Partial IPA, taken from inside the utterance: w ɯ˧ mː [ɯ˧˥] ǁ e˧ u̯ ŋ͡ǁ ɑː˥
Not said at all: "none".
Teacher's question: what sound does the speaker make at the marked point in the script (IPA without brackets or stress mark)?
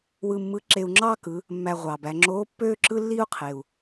ɯ˧˥